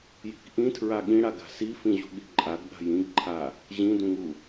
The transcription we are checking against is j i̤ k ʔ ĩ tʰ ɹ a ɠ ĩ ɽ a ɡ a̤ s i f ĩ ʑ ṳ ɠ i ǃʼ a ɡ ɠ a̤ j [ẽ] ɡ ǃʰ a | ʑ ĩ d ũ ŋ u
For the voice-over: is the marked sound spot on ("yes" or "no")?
no